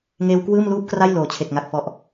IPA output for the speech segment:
ŋ eː˧ w k w ɯː˥˩ m l uː˥˩ p̚ k r a˥˩ j l oː˩˦ t͡ɕʰ e˨˩ k̚ ŋ a˨˩ k̚ f ɔ˨˩ ʔ

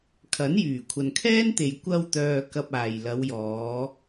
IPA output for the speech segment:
kʰ ɐ˨˥ n j yː˨˩ kʷʰ ɐ˨ n kʰ ɛː˥ n t̪ e˨ j kʷ ɐ˧ w t̪ œː˨ k ɐ˧ p̚ aː˨ j l ɐ˨˧ w j ɔː˨˧

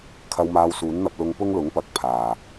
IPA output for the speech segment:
kʰ ɐ˧ w m aː˧ w s uː˨˥ n n̪ ɐ˧ p̚ l ʊ˧ ŋ p ʊ˥ ŋ l ʊ˨˥ ŋ p ɐ˨˥ k̚ pʰ aː˨˩

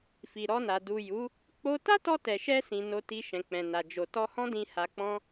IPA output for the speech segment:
f i˨ ɾ ɔ˧ n a˨ d u˨ j u˨˦ | k͡p o˦ t a˦ t ɔ˧ t ɛ˨ ʃ ɛ˧ s ĩ˨ n o˧ t i˧ ʃ ɛ̃˨ k͡p ɛ̃˨ n a˨ d͡ʒ o˨ t ɔ˧ h ɔ̃˦ d ĩ˧ h a˧ k͡p ɔ̃˦

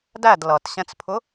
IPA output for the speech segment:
d æ d l ʌ t ɕ ɛ̃ t͡s pʰ ʊ

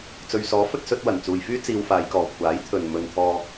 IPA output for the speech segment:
t͡s ɵ˨ ɥ s ɔː˨˥ f ɵ˧ t̚ s ɵ˧ t̚ w ɐ˨˩ n t͡s uː˨ j f yː˥ t͡s iː˧ w f aː˨˧ j k ɔː˨ kʷʰ aː˨˥ j t̪ʰ ɵ˨ n m ɵ˧ n t̪ʰ ɔː˧

